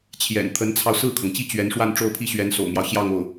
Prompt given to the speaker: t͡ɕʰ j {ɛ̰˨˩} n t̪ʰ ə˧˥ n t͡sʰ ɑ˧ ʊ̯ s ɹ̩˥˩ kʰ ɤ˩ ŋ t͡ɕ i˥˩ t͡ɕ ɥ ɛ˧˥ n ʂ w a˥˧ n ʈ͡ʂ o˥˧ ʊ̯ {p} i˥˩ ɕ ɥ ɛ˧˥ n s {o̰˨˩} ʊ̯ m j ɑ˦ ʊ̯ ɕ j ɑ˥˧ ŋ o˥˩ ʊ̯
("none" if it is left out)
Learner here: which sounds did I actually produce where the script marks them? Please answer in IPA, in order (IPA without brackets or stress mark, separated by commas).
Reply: ɛ̰˨˩, pʰ, o̰˨˩